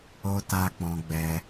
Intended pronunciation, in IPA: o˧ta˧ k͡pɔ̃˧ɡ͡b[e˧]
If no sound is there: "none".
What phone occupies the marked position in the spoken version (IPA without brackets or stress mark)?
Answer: ɛ˧